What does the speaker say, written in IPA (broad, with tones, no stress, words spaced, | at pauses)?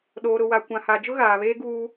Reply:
ɗoː˨ɾʊ˨wa˨ kʷã˨ha˨ d͡ʒʊ˦ɣaː˨βeː˦ ɡuː˦